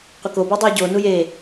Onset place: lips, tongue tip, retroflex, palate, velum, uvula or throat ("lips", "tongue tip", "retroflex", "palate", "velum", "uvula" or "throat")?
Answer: uvula